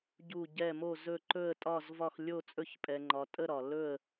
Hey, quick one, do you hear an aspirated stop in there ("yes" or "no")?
no